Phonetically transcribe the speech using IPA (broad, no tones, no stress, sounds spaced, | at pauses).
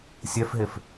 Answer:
sʲ ɛ f ɦ e f